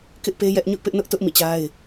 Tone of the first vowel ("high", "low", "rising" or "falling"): high